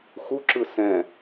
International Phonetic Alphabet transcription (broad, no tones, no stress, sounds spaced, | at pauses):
x u ǁ ɯ s ɛ̃